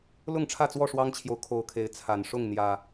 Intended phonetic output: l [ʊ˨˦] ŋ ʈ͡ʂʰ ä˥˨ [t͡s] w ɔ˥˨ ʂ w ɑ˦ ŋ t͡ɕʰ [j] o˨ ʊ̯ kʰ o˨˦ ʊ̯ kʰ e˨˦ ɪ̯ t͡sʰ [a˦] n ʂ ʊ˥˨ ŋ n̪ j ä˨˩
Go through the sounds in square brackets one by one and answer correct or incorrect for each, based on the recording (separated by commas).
incorrect, correct, correct, incorrect